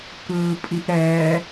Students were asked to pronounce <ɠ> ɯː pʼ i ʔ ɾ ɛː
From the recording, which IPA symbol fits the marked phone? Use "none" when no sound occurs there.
k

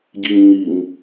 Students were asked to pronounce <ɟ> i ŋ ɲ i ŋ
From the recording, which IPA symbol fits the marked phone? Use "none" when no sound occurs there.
ɟ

